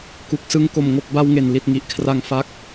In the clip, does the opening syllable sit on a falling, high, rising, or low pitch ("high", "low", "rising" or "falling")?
low